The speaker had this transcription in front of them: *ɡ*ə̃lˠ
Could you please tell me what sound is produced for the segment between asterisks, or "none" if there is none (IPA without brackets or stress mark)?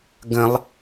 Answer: ɡ